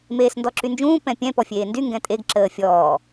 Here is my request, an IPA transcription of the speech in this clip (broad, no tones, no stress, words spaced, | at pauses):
meːsndɔǁynd͡ʒũː pɛ̃pʲɛ̃ pɔfʲeːndy ŋɡɛ̃tʼeɡ ǁəːfʲɔː